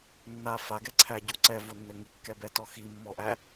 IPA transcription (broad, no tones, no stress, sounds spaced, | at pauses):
nː a f a ɡ ɛ ǀʰ æ ɟ u ǀ ɛ v o nː ɘ ŋ i kː ɛ b ɛ t ɔ x i mː ɔ ʔ æ